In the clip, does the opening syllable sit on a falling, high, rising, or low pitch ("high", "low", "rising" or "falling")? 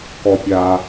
low